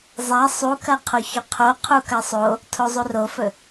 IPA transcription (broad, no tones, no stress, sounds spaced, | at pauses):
zˤ a sˤ u k ɐ qʰ o ç ɵ qʰ o qʰ u k ɐ sˤ o | tʰ o zˤ u r o f ɵ